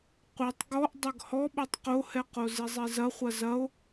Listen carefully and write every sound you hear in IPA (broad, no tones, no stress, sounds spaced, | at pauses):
qʷ ɛ tˤ ɡ ɔ ʔ dˤ ɐ ɡ h ɔ ɓ o tˤ q o h ɛ q o z e zˤ e z ɐ χʷ ɐ z ɐ o̯